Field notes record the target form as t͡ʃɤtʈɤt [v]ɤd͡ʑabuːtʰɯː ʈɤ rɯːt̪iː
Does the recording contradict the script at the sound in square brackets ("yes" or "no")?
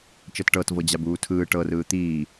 no